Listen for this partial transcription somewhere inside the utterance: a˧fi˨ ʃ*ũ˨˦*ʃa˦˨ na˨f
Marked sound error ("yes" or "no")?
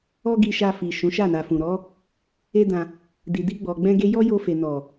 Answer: no